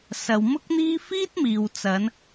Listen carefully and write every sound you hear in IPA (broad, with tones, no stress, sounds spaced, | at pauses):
s ɐ˨ w m ʊ˥ k̚ n̪ iː˥ f iː˥ t̚ m iː˨ w t͡s ɐ˨˧ n